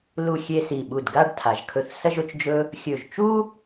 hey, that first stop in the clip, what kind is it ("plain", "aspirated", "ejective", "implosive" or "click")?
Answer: implosive